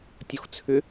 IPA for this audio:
tʲ o x t͡sʰ ʏ

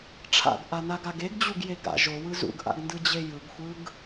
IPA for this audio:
ʈ͡ʂʰ a̰ ɡ ʔ a n a ɡ a ɡ e ɡ d͡ʑ u ɡ j e ɡ a̰ ʒ o w ɯ z ṵ ɡ ʔ a̰ ɡ n d ɯ d͡ʑ e j ɯ ɡ xʷ ɯ ɡ

